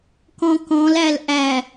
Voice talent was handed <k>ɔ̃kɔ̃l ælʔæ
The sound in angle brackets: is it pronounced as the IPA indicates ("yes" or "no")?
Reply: yes